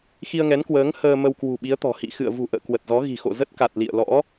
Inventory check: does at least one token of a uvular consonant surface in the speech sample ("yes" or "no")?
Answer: no